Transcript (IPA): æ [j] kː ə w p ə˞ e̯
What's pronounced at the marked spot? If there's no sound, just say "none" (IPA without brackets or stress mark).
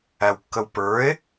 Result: w